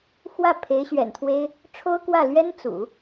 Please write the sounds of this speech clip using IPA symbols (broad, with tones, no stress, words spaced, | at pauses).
xwä˥˩ pʰe˧˥ɪ̯ɕɥɛ̰˨˩nt̪ʰwe˥ɪ̯ | ʈ͡ʂʰo˥ʊ̯kwä˥˩ lɥɛ˥nt͡sṵ˨˩˦